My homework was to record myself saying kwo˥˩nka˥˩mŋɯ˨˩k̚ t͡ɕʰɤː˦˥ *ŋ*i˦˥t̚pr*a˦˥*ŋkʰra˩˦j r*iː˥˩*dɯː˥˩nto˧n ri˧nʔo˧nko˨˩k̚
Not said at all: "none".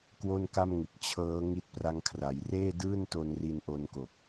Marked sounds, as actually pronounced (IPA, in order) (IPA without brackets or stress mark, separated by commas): ŋ, a˦˥, eː˥˩